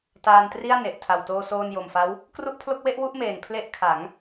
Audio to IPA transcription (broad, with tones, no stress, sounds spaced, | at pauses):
t aː˧ n t r i˥˩ a̯ n e˨˩ ʔ tʰ a˨˩ w t oː˧ s oː˧ n j o˨˩ m f a˦˥ w | k r u˥˩ ʔ pʰ l o˥˩ k̚ w e˥˩ ʔ w u˥˩ ʔ m eː˨˩ n pʰ l e˦˥ ʔ kʰ a˩˦ ŋ